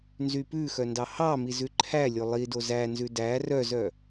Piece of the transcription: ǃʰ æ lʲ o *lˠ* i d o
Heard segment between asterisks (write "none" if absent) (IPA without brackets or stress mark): lˠ